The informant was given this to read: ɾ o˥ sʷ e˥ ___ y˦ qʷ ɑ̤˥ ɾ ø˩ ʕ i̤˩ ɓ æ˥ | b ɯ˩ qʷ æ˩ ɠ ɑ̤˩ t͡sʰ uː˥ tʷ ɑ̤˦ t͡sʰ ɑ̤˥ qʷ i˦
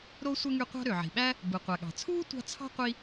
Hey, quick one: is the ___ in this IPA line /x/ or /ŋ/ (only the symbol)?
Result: ŋ